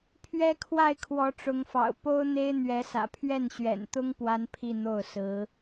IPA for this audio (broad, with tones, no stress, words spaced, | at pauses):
pʰɥɛ˥kʰwa˥˩ɪ̯ kʰwɔ˧˥ʈ͡ʂʊ˧˥ŋfɑ̰˨˩ʊ̯ po˥ʊ̯n̪e˥ɪ̯ n̪ɥɛ˧˥sä̰˨˩ pʰɥɛ˥˩nɕɥɛ̰˨˩nt̪ʊ˥ŋ pwa˥npʰi˥˧n̪o˥˩ʊ̯ sɹ̩˧˥